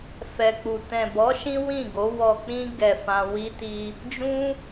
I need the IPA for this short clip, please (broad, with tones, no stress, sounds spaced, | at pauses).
f ɛ˨ k͡p u˨ t ɛ̃˨ b ɔ˨˦ ʃ ĩ˦ w ĩ˦˨ ɡ o˨˦ w ɔ˧ k͡p ĩ˦ ɡ ɛ˧ f ã˧ w i˦ t i˦ | d͡ʒ ũ˦